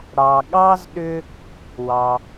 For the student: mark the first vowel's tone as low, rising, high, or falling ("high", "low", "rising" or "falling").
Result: low